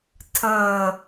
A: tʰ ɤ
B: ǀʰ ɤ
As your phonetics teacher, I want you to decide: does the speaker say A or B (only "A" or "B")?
A